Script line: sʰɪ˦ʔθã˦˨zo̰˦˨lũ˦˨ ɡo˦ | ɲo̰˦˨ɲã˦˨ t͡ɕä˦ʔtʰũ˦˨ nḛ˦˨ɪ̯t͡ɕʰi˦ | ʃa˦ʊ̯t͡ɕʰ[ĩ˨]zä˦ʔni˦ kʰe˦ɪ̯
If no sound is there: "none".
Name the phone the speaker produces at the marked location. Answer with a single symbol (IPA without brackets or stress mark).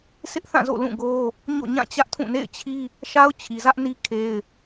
i˨